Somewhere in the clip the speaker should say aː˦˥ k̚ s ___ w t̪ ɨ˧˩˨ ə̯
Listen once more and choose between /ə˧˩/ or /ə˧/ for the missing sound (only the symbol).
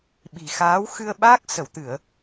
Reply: ə˧˩